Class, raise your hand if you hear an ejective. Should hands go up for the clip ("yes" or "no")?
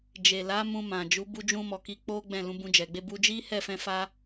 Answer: no